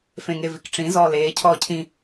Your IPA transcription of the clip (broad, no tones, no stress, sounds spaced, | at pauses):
f ẽ ŋ e v i k ʈ͡ʂ ĩ z ɔː l eː cʰ ɔː cʰ ĩ